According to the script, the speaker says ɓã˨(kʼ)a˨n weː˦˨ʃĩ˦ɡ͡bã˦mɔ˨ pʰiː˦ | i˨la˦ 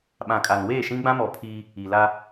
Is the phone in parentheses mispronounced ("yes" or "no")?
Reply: no